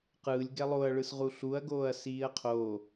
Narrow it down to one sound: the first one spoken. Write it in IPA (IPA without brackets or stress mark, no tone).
q